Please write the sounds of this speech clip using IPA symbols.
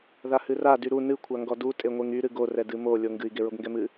ðahɨra dyɾu nɨ kʷʰaŋɡɔdu tʼeŋʷeŋy ɾɨɡo rɛdɨmo lʲoŋɡɨi̯ ɡeɹoɡŋɡɛmɨ

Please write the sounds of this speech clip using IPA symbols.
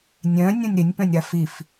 nʲœ̃ nʲõnʲɾɪnʲ pœ̃nʲɾafif

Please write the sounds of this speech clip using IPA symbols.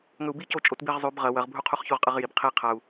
ŋɵu̯bico t͡ʃʼotbiʁ zˤʉb ʁɐ wɐʁbʱu qʰuχçuʁqʼɐʁjib qʰi qʰau̯

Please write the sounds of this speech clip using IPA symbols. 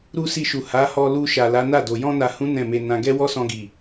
ɾu˦si˧ʃu˨ ha˨˦ hɔ˧lu˧ʃa˨ la˨˦ na˦˨do˨ jɔ̃˧na˨hũ˨˦ nɛ̃˦˨me˧nã˧ ɡɛ˦wɔ˦sɔ̃˧ɡi˨

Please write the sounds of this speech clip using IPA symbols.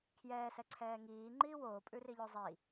kʰjɛːsɛ ǀʰɛːŋiː ŋ͡ǃiːwoːpʼʉ riʎozˤi

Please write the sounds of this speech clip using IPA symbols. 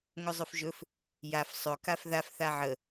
ŋɵzˤɵfʒɵf | jaf sˤɵ kafðaf θaʕə

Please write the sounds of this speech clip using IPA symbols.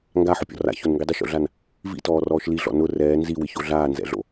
ŋɡaħʊpʲɔ̰ ra̰çonŋɡi dˤɪʃo̰ɮan | vḭtɔːrɔːʃ liɮɔ̰ nʊ rɛː nziwɪço ɮaːnzɛ̰ɮo̰

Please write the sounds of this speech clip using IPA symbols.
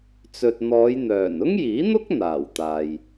t͡sɵ˨t̚n̪ɔː˨˧jn̪œː˨˩n ʊ˥ŋjiː˨˥n̪ʊ˥k̚ n̪aː˨˩wt̪aː˨j

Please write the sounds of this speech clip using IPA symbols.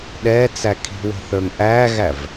ɗɛt͡sæ kʰi̤wə̤ θə˞ŋʔæɣæv

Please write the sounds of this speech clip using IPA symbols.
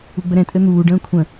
uɡ͡bəɾɛ̃ tʼɘn̪uː ɖə̃ːkʷʰə̃

